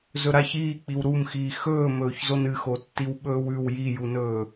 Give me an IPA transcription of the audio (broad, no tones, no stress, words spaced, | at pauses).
zɵɾaç iːk͡piw ɾumxiː xɵːmɵːçzon ɨxotːiw ɓɵːwʉw jijunɵː